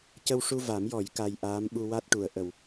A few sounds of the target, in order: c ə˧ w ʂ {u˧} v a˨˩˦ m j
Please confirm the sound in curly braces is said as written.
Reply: yes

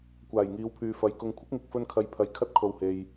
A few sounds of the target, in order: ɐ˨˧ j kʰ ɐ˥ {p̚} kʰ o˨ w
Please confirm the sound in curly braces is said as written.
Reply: no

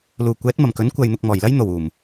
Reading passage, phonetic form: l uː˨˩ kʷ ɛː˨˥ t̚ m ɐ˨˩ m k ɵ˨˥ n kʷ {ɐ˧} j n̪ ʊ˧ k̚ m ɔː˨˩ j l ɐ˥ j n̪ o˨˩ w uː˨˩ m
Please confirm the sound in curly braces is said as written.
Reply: yes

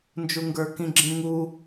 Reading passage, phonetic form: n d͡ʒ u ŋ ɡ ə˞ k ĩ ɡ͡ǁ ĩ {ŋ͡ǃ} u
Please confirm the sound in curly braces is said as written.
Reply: no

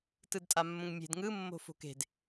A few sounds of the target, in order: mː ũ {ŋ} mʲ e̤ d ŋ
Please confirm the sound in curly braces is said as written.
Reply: yes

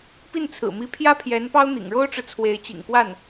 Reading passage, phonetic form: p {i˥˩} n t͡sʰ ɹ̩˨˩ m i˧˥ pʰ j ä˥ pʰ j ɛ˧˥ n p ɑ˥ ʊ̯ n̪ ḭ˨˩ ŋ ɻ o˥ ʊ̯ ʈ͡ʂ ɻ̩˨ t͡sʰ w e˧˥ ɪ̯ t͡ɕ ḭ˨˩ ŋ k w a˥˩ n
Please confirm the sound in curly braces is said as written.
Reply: yes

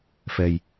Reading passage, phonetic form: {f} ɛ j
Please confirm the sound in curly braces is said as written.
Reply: yes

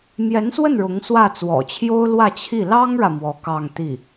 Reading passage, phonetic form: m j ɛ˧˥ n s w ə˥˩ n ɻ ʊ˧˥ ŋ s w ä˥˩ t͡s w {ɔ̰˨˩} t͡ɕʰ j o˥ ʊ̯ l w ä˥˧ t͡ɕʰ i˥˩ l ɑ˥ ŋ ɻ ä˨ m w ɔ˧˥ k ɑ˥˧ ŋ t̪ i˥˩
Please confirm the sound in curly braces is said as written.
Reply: yes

